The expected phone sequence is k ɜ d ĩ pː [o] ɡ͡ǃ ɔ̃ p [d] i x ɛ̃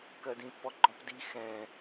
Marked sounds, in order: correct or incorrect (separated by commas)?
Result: incorrect, correct